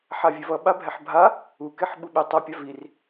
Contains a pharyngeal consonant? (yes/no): yes